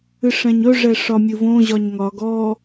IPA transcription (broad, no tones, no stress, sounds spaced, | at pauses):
ɨ ʂ ɛ̃ ɲ ɵ ʐ ɛ ʂ ɒ mʲ ɨ v õ ʑ ɒ ɲ ŋ ɒ ɡ ɔ